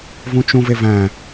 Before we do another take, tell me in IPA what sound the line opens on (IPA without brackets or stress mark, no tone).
v